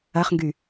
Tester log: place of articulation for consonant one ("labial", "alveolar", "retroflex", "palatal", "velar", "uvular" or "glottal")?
uvular